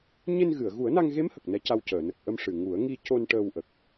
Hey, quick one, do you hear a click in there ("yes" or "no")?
no